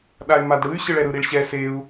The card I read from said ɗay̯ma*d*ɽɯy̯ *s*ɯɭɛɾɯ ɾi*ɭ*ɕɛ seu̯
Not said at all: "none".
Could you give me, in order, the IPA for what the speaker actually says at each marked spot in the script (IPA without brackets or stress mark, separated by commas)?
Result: d, ɕ, ɭ